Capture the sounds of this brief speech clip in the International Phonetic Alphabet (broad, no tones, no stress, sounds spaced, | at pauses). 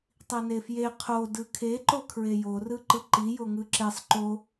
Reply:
tˤ i n e f j e qʰ o d ɯ kʰ e ǃ o kʰ ɹ e j o r ɯ ǃ ɯ ǃ i j o ŋ ɯ ǁ e sˤ ǃ o